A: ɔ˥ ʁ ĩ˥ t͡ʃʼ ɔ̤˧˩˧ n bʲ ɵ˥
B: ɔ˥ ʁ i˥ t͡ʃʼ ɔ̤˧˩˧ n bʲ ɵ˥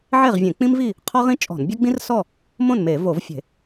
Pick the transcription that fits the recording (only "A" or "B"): A